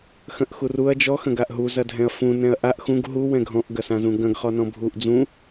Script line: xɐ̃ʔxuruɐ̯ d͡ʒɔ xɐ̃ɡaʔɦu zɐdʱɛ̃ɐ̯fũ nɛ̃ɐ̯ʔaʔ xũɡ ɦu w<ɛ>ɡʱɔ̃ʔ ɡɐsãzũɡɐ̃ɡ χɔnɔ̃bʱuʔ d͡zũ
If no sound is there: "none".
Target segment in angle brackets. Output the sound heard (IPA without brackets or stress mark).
ɛ̃